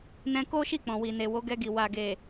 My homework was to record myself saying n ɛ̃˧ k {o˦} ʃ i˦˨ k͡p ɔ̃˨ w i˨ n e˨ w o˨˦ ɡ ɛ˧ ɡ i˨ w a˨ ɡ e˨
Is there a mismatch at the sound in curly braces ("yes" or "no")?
no